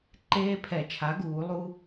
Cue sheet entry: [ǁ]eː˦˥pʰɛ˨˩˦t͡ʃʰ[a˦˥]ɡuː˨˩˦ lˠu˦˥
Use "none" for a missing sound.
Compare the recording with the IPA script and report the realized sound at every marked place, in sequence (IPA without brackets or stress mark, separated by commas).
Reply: ǃ, a˩˥